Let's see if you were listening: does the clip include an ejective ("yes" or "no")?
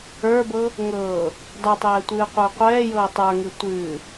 no